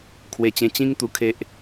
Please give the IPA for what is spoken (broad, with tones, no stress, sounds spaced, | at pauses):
kʰ w e˧ t͡ɕ ẽ˧ t͡ɕ ĩ˧ ŋ t̪ u˧ kʰ e˦ ʔ